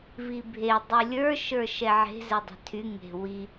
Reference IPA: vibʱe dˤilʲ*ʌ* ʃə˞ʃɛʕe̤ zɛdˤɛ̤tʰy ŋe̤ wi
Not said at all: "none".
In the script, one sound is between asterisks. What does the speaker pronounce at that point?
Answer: ə˞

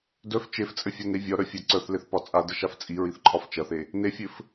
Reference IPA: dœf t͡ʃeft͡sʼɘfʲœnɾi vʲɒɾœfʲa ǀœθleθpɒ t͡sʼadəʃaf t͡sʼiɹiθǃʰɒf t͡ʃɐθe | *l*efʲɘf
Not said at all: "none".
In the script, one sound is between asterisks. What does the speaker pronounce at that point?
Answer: n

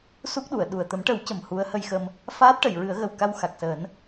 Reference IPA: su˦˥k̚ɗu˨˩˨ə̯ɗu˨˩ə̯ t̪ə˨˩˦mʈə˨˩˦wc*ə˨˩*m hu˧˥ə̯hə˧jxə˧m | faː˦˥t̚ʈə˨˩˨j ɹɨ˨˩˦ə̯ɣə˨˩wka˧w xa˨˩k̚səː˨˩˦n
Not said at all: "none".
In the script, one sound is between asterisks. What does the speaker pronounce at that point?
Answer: ə˨˩˨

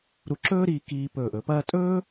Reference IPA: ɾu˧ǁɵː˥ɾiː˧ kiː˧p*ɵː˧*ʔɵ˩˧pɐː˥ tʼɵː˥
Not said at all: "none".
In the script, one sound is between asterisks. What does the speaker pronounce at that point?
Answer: ɵː˧˩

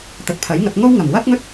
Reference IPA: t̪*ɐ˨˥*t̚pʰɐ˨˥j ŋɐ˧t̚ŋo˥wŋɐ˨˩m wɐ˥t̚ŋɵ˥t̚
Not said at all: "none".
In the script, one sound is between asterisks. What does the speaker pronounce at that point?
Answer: ɐ˨˥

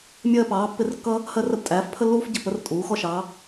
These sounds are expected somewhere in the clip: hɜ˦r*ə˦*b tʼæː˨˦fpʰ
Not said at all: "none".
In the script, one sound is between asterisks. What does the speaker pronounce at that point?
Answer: ə˦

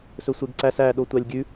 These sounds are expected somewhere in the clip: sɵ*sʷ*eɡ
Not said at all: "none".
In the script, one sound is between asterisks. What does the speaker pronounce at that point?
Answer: sʷ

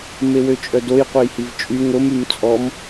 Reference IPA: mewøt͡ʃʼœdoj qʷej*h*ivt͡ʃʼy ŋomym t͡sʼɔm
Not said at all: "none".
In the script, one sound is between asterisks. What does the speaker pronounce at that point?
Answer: h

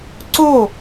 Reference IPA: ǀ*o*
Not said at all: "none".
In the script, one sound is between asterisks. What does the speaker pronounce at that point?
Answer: o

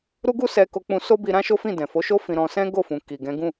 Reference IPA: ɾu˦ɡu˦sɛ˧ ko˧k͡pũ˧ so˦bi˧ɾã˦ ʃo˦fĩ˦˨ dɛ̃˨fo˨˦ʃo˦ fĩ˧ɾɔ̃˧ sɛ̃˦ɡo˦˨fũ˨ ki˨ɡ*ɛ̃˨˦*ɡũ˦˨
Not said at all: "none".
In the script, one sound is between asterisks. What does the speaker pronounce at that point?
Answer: ɛ̃˨˦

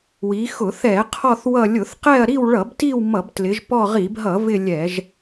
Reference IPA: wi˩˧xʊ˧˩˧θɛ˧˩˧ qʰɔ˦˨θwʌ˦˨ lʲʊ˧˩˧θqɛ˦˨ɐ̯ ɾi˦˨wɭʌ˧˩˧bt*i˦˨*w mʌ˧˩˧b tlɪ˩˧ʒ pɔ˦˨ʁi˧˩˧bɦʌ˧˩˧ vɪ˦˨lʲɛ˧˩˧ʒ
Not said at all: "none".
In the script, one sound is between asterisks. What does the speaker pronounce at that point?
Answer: i˦˨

